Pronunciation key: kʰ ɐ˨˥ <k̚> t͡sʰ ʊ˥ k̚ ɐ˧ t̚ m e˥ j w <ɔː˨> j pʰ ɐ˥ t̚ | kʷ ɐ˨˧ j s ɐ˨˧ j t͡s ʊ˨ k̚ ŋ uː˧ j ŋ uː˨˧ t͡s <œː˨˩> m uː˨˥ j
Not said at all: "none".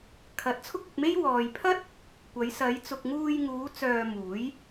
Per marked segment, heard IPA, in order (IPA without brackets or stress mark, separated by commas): t̚, ɔː˨, œː˧